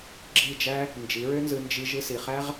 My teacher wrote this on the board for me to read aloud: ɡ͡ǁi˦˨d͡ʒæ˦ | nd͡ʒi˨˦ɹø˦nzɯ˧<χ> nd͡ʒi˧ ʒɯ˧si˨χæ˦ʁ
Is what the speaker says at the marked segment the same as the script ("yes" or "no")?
no